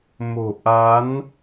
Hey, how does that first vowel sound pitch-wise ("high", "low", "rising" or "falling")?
low